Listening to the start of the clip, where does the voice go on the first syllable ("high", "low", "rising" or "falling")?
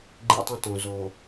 high